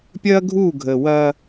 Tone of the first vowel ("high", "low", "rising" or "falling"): high